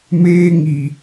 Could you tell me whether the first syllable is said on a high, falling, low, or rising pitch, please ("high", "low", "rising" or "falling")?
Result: high